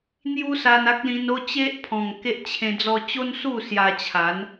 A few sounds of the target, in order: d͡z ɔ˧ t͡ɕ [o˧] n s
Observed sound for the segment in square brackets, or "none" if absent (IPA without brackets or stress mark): o˦